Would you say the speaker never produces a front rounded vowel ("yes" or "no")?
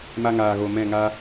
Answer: yes